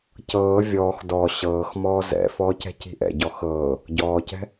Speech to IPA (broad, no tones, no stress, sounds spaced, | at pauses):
c ɤː vʲ ɔː x d ɔ ɕ ɤː x m ɔː z ɛ̰ f ɔː c ɛ̤ c i̤ ʔ ɛ̰ ɟ ɔ x ɤː | ɟ ɔː c ɛ̤